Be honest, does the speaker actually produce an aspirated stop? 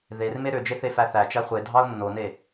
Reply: no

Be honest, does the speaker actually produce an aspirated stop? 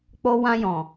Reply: no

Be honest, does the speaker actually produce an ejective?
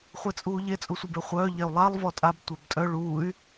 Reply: yes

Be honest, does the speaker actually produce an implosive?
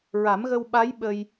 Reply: yes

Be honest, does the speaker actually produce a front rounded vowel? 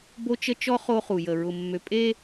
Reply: yes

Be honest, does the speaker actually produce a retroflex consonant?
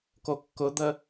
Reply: no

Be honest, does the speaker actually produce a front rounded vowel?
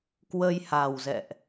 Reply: no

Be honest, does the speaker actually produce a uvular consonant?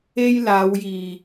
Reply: no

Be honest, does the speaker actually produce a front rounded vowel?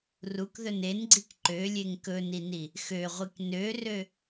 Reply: yes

